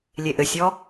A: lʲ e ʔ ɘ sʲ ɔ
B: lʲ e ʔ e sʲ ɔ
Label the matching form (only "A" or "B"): A